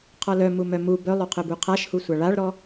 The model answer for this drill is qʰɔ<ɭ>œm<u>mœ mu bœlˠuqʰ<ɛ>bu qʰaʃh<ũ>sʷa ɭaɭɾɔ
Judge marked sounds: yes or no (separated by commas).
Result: no, yes, no, no